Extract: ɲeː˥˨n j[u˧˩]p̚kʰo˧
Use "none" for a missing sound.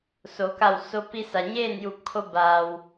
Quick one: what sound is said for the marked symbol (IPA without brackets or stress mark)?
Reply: u˧˩